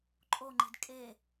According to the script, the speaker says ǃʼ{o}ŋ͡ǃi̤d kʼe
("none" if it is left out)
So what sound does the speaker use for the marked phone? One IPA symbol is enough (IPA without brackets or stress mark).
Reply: o